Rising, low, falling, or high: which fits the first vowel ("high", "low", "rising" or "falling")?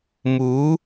rising